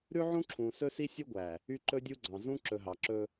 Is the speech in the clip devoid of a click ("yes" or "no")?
no